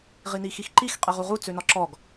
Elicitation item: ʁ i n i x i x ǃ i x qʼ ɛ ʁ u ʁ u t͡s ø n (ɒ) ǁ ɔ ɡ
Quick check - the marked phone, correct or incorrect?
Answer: correct